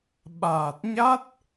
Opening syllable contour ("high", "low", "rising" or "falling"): low